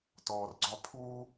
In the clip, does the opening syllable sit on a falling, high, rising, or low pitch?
low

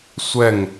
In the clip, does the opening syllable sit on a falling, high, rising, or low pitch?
falling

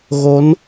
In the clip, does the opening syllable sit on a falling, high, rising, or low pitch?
rising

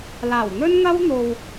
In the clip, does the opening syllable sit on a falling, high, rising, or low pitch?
low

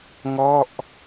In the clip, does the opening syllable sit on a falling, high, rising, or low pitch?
falling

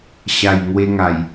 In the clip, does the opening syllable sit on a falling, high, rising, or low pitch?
low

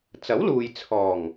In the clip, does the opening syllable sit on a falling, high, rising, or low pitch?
rising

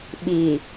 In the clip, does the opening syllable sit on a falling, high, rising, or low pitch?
low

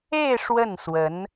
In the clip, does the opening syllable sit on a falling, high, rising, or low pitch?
falling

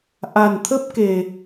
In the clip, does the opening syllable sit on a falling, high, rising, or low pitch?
low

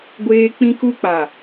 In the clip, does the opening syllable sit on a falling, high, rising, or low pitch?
high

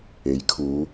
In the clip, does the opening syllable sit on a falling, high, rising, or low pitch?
rising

